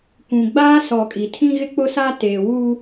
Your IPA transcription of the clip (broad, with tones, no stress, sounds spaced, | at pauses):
kʷ ũ˨ ɡ͡b aː˦ s ɔ˨ kʼ i˨ tʰ ĩ˦ ɣ ɪ˦ k͡p ʊ˦ s a˦ t eː˨ w uː˦